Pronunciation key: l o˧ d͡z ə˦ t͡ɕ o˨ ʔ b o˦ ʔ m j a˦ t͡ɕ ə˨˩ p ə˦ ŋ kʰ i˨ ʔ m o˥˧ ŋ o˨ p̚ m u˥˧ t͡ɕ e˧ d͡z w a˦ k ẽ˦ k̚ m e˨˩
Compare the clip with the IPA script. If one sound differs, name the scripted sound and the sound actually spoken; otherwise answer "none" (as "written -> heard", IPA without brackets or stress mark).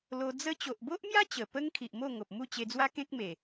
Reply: none